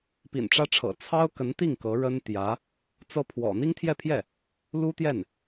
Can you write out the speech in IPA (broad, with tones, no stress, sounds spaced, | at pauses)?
p ḭ˨˩ n ʈ͡ʂ ä˥ ʈ͡ʂʰ ɤ̰˨˩ t͡sʰ ɑ˥ ʊ̯ k ə˧˥ n t̪ i˥˩ ŋ k ɤ˧˥ ɻ ə˥ n t̪ j ä˧˥ | t͡s ɤ˥ pʰ w ɔ̰˨˩ n̪ i˥ ŋ t̪ʰ j ɛ˥˧ pʰ j ɛ˥˩ | l u˥ t̪ j ɛ˥˩ n